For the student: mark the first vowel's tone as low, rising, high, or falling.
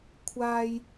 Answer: high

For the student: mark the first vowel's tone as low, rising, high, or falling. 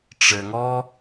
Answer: low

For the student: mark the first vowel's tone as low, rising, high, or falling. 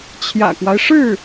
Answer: low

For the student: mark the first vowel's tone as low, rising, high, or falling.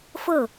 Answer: falling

